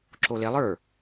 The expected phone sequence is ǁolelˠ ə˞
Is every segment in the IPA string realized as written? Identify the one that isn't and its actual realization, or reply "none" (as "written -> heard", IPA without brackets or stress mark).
none